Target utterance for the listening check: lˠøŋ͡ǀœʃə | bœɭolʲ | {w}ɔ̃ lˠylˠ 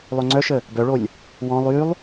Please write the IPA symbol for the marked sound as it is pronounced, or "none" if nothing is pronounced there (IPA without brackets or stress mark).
w